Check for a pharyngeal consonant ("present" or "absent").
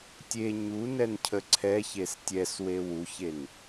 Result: absent